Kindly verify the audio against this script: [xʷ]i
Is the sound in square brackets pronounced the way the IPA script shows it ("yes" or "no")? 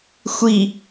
yes